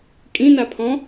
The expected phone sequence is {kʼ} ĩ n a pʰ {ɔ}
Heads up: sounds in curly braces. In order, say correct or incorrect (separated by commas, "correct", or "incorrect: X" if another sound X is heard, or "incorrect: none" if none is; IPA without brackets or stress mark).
correct, incorrect: ɔ̃